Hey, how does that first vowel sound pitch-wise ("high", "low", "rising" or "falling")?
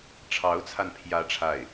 rising